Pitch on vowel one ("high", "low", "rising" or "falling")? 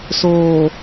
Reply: low